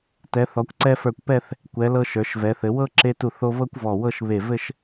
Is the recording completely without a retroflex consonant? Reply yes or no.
yes